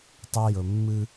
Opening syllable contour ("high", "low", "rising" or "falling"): high